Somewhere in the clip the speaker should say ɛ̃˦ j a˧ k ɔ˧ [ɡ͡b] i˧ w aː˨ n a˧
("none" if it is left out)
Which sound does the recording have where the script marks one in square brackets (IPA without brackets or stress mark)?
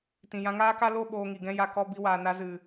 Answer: b